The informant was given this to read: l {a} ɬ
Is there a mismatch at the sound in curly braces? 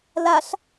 no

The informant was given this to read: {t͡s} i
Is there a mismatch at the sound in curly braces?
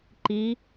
yes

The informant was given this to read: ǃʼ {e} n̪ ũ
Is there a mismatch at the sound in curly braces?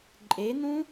no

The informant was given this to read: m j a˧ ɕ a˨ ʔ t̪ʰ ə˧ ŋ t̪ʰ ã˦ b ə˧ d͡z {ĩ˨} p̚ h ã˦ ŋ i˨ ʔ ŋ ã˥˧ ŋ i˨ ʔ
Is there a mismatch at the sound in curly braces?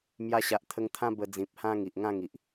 no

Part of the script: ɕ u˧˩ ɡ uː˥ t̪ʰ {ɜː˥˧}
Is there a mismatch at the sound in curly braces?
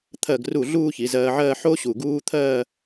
no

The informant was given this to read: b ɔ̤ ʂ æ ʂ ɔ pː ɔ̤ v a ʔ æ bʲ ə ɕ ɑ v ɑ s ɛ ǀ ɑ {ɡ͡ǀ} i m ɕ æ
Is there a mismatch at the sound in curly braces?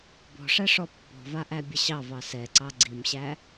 no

